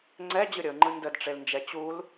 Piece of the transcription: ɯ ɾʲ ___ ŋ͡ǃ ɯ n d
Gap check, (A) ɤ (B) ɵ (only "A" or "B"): A